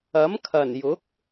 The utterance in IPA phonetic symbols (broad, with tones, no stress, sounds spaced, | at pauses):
ɐ˨˥ m kʰ ɐ˨˩ n j ʊ˨˥ k̚